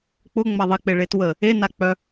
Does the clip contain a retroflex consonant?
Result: yes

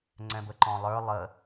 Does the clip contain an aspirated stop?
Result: no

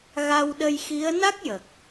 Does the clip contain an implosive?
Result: yes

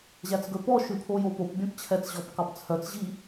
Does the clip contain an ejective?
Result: no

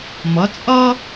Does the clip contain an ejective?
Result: yes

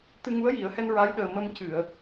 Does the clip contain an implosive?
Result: yes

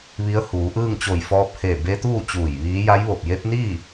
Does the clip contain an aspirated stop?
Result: no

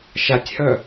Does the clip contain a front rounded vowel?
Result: yes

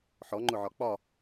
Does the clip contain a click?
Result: yes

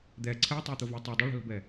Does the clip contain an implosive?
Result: no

